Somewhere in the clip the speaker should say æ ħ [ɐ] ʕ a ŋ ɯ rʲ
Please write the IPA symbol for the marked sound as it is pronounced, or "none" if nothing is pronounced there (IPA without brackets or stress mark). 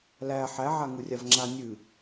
æ